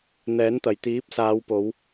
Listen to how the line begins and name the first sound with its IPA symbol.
n̪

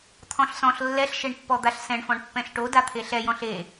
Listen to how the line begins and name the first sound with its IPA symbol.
t̪ʰ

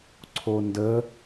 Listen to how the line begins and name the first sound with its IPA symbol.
ǀʰ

